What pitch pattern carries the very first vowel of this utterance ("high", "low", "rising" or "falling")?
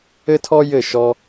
high